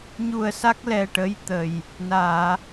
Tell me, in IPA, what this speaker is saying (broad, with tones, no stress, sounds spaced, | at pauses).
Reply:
ɲ u˧ ə̯ s a˦˥ k̚ l ɛ˧ ʈ ə˧˥ j t̪ ə˨˩ j | n aː˨˩˨